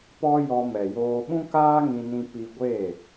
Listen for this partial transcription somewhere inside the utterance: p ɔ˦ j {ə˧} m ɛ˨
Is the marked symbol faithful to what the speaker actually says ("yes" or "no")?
no